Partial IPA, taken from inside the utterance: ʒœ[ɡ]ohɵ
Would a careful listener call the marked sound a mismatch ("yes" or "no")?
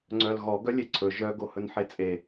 no